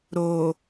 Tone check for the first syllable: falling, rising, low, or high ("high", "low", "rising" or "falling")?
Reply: low